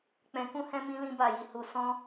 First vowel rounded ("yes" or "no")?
no